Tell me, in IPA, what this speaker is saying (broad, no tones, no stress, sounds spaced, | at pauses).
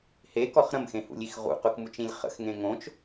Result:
h e k ɔ χ ɾ ə̃ m x ẽ h ṵ lʲ i x ʁ ṵ q ʊ k m u t͡ʃ ĩ lʲ χ ə̰ x ŋ ẽ ŋ õ t͡ʃ